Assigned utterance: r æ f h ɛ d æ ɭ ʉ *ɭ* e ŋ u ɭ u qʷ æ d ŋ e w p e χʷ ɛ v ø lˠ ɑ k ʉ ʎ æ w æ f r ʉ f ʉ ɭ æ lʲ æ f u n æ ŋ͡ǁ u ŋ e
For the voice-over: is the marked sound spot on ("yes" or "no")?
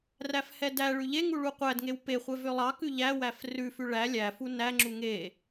no